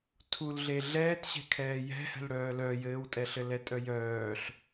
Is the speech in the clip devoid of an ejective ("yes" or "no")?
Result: no